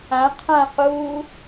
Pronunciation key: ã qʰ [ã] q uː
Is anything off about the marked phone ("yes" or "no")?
no